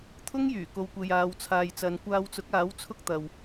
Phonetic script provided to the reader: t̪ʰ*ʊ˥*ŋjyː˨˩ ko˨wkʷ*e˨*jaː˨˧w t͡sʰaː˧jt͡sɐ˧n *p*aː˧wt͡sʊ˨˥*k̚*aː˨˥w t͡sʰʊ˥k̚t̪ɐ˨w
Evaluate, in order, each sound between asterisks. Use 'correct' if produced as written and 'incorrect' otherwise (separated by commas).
correct, correct, incorrect, correct